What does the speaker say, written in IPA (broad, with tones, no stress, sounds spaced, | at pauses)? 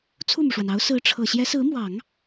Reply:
t͡sʰ u˥˩ m u˩ ʂ w a˩ n ɑ˧˥ ʊ̯ s ɹ̩˧˥ ʈ͡ʂʰ ɤ˨˩ ɕ j ɛ˧˥ s ɹ̩˧˥ m w ɑ˨˩˦ ŋ